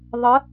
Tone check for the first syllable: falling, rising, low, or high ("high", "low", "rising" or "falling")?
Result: rising